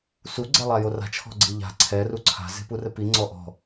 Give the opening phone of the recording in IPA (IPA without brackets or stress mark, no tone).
s